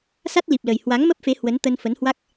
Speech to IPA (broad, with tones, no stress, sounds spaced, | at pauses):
s a˦˥ t̚ l i˨˩ p̚ l ə˨˩ j h w a˨˦ ŋ m ə˦˥ p̚ f e˨˦ h w ə˨˦ n t̪ ə˧ n f ə˨˦ n h w a˦˥ k̚